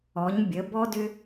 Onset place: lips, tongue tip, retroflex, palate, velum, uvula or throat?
palate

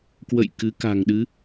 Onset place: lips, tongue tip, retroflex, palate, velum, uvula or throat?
velum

